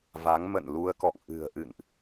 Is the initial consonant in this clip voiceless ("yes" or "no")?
no